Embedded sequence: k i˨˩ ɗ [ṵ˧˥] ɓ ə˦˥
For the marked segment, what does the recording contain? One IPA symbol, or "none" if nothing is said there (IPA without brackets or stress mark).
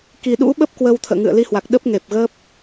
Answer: ṵ˧˥